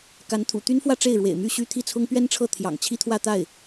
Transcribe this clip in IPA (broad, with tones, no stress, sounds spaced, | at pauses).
k a˧˥ n t̪ʰ ṵ˨˩ t̪ y˥ n f w ä˥˧ ʈ͡ʂ e˥˩ ɪ̯ ɻ w ḛ˨˩ ɪ̯ m y˥˩ ɕ y˥ t̪ʰ i˥˩ t͡sʰ ʊ˥ ŋ p ɥ ɛ˥ n ʈ͡ʂʰ ɤ˥˩ t̪ʰ j ɑ̰˨˩ ŋ t͡ɕʰ i˥ t̪ʰ w ä˥˧ t̪ a˥˩ ɪ̯